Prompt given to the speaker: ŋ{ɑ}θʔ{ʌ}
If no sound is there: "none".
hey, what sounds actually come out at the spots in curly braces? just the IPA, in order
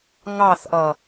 ɑ, ʌ

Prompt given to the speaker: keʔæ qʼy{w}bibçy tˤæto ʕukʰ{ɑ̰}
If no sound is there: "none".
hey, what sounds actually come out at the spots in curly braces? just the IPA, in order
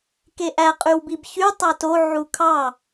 w, ɑ

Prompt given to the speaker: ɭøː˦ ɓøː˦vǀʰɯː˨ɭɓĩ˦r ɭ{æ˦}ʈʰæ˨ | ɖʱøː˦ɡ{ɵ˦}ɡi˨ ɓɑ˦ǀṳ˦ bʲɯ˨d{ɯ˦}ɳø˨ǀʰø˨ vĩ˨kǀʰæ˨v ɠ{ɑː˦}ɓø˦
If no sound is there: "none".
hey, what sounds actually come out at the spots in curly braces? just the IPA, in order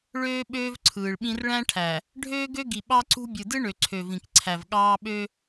æ̃˦, ø˦, ɯ˦, ɑː˦

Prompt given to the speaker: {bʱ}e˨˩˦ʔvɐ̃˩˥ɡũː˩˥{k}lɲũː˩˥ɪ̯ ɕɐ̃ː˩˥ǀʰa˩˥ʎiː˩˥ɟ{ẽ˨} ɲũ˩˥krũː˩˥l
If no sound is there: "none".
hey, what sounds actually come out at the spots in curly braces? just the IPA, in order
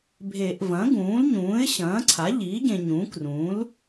bʱ, none, ẽ˨

